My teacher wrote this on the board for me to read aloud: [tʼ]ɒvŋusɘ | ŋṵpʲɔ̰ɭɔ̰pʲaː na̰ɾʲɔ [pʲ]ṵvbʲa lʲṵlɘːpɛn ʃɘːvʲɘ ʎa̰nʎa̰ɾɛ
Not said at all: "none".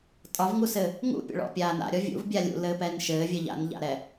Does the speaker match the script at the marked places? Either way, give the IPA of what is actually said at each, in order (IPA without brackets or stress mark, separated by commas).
tʼ, vʲ